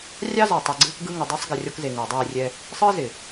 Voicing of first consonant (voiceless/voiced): voiced